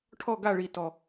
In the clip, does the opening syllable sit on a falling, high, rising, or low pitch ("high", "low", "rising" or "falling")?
falling